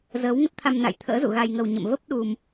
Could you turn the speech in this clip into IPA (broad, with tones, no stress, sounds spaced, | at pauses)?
z əː˨˦ w ŋ ə˦˥ t̚ t̪ʰ a˧ m n a̰˧˨ j t̪ʰ ə̰ː˧˥ z ṵ˧˨ ɣ a˧ j ŋ ə˧ w ɲ ə̰˧˨ m v ə˦˥ p̚ ɗ u˧ m